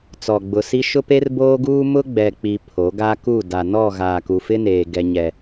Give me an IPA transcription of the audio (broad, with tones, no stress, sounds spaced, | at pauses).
t͡s ɔ˨ ɡ͡b ʊ˨ s i˦ ʃ ʊ˦ p e˦ r b oː˦ ɡ uː˦ m ʊ˦ ɡ͡b ɛ˨ k͡p i˨ pʰ o˨˦ ɡ a˦ k u˦˨ d a˨ n ɔ˦˨ ɣ aː˨ k u˨ f ɪ˦ n eː˨ ɡ ɛ˦ ɲ ɛ˦